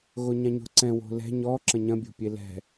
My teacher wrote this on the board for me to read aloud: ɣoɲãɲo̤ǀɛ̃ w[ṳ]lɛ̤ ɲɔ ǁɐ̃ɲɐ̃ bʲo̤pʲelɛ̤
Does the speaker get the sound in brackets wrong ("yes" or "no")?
yes